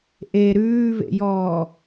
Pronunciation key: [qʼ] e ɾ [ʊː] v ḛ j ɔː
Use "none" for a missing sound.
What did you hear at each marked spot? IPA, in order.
ʔ, ʉː

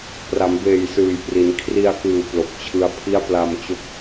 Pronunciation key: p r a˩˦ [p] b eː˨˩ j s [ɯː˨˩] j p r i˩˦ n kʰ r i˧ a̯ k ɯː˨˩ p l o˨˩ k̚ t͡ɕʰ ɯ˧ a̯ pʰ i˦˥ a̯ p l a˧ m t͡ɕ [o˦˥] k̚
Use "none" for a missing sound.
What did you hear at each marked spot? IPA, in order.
m, ɯː˨˩, o˦˥

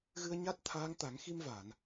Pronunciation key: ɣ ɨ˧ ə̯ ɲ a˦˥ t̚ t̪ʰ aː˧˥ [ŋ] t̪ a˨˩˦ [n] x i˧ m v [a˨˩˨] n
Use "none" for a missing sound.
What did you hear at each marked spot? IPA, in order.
ŋ, ŋ, a˨˩˨

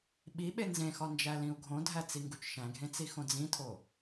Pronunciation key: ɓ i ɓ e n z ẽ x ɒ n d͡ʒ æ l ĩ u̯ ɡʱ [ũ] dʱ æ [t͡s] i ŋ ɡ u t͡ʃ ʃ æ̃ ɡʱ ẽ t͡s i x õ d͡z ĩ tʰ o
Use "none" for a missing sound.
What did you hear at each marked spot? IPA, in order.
õ, t͡s

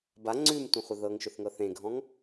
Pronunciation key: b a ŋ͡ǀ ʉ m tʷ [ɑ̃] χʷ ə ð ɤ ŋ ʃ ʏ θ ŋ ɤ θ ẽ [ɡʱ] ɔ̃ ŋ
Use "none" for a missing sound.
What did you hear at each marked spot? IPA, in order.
ə̃, ɡʱ

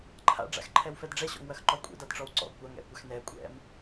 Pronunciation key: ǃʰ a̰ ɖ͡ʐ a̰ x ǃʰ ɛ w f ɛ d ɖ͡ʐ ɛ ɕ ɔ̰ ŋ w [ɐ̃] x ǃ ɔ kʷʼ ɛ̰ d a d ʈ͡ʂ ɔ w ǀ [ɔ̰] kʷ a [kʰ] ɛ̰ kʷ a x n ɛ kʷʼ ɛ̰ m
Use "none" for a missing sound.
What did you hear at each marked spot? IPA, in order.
ɐ, ɔ̰, ŋ

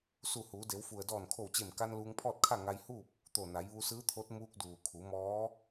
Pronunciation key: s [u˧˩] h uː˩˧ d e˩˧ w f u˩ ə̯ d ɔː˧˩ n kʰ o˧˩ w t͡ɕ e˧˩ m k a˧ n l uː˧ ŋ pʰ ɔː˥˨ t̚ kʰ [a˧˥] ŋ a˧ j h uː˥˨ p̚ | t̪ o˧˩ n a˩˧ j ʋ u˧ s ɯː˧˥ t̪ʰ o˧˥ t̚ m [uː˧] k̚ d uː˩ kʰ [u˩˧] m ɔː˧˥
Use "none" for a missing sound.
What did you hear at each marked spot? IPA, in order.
u˧˩, a˥˨, uː˧, u˩˧

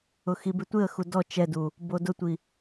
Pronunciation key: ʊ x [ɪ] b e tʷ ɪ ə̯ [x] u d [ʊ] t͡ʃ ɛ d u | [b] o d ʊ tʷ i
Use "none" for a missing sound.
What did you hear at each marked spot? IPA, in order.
i, x, ɔ, b

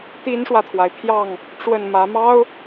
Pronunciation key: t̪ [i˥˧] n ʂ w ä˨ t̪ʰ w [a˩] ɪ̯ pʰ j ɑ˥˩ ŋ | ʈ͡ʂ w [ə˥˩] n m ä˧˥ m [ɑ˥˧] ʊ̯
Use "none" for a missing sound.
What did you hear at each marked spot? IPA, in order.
i˥, a˩, ə˥˩, ɑ˥

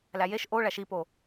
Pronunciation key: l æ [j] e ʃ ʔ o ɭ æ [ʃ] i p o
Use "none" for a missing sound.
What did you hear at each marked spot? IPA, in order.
j, ʃ

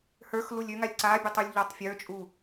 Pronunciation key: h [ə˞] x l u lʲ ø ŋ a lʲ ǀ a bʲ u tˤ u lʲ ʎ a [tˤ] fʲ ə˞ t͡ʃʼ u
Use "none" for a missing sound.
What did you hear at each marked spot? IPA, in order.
ə˞, tˤ

